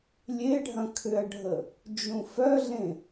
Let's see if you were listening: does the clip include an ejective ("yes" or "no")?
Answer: no